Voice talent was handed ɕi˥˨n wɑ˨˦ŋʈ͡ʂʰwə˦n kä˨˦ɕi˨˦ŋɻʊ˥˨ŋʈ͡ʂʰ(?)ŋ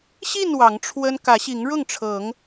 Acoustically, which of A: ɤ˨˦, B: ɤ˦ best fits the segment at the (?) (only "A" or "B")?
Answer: A